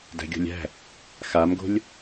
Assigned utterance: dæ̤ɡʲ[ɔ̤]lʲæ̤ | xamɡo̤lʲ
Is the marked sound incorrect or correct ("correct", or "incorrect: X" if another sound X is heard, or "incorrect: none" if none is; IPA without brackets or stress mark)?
incorrect: o̤